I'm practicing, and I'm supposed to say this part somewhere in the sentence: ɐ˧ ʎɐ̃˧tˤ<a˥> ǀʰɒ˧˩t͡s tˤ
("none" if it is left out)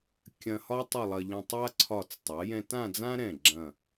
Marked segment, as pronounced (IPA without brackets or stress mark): a˥